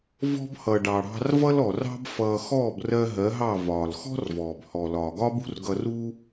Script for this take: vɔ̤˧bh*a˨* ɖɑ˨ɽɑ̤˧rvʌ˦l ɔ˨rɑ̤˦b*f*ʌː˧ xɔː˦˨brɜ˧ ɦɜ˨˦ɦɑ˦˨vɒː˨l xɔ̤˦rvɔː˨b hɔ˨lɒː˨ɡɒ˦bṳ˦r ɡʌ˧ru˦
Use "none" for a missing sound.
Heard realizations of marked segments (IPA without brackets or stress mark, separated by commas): ʌ˨, f